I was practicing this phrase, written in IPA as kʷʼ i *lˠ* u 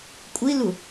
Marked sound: incorrect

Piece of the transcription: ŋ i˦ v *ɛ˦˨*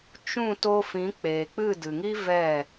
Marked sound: correct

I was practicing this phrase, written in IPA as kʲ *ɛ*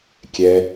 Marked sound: correct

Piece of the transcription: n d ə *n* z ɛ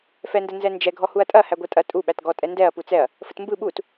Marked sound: correct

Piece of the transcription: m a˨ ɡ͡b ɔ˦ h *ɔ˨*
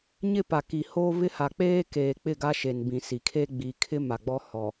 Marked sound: correct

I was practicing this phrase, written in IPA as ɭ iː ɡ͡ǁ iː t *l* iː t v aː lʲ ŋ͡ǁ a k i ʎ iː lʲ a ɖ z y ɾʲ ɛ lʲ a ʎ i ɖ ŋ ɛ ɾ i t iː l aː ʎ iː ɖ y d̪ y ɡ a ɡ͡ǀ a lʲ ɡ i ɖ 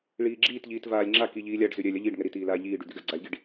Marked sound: incorrect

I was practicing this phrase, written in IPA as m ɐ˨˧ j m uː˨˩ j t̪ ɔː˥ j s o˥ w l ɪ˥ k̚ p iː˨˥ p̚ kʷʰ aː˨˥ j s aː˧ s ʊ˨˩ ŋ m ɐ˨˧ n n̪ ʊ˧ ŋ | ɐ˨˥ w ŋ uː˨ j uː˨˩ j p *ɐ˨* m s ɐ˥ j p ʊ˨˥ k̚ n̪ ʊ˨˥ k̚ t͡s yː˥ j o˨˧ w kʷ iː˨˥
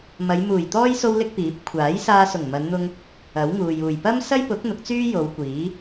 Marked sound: incorrect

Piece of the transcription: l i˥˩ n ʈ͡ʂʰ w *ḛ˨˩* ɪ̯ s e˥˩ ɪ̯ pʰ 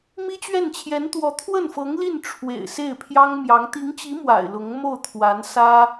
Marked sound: correct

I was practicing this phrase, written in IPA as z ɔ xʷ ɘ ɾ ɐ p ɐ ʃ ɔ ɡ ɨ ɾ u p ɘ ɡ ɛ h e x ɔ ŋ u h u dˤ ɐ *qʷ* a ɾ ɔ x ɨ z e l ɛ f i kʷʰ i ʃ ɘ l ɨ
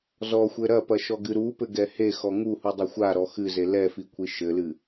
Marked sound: incorrect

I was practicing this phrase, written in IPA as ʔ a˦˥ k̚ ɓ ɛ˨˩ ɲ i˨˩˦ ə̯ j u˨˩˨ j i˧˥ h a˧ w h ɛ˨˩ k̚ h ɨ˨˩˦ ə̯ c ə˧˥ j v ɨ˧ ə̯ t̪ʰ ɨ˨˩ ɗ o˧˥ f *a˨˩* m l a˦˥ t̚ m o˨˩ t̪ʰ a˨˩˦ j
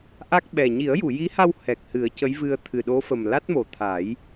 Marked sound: incorrect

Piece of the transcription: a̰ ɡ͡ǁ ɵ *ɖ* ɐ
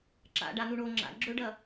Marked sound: correct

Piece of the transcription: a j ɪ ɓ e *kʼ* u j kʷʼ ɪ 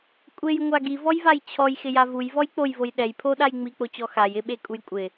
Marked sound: correct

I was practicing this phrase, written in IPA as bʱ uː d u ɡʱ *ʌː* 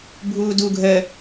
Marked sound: incorrect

